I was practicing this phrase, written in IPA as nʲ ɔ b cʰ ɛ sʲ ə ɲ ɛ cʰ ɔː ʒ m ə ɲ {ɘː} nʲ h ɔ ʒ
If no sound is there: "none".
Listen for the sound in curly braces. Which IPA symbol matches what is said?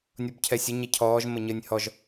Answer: ɘː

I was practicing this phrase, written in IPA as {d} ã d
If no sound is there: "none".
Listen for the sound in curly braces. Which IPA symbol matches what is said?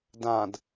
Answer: d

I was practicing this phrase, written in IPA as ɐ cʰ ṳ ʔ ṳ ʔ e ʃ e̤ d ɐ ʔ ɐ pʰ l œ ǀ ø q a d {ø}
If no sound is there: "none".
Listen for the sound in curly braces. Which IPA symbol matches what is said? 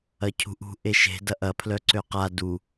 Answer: u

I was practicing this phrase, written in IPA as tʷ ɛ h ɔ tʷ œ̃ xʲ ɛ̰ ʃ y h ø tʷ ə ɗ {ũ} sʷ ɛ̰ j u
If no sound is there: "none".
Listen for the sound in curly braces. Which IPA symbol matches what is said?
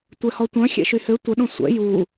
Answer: õ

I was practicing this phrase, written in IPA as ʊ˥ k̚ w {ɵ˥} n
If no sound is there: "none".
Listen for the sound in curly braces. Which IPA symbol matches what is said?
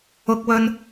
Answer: ɵ˥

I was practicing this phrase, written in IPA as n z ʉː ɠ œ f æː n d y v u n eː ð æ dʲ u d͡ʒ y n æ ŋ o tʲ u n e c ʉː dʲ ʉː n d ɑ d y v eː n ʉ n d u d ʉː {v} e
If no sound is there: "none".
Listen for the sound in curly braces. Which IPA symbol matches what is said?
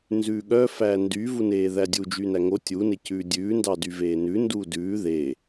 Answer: ð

